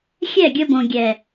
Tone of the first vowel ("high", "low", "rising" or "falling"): falling